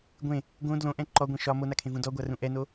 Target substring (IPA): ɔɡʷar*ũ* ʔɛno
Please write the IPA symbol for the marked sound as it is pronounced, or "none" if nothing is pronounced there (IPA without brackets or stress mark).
ũ